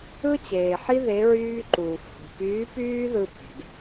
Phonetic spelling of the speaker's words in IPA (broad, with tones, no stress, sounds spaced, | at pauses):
ɯ˥ t͡ɕ eː˩ ħ i˥ ð e˧˥ ɹ yː˥ ǃ uː˩ f h ṳ˩ p yː˧˥ p yː˥ ð ɯ˧ p e̤˩ ɡ